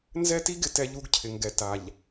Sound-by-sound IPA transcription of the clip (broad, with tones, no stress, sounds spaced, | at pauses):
n z ɛ˦ t i˦ ɡ ɪ˦ t ɛ˦ ʎ u˦ ɡ cʰ ɪ˨ ŋ ɡ ɛ˨ t a˨ ʎ